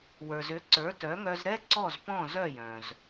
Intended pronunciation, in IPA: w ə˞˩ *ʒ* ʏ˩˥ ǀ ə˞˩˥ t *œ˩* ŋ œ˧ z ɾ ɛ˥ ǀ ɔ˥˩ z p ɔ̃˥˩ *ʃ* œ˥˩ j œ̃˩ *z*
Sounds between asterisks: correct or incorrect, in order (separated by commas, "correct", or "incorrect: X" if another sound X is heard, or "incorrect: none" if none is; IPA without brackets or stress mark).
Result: incorrect: z, incorrect: œ˩˥, incorrect: z, correct